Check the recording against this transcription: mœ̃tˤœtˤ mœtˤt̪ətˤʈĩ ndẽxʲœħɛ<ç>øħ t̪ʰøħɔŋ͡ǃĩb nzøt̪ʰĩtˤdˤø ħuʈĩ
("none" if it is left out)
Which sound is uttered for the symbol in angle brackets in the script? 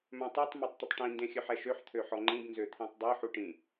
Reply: ʃ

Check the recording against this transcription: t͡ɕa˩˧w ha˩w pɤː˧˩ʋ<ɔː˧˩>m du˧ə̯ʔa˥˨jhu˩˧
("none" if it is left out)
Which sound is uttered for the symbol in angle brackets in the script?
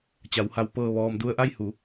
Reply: ɔː˩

